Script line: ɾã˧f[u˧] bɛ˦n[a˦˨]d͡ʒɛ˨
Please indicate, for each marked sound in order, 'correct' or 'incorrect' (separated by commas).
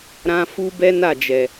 incorrect, correct